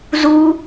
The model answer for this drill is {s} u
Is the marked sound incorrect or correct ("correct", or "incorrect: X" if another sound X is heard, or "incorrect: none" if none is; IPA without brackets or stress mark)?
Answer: incorrect: z